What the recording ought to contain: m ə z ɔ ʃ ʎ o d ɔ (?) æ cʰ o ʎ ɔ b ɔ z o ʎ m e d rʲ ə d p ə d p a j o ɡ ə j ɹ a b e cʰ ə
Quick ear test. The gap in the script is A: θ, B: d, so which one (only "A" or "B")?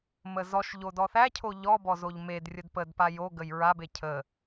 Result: A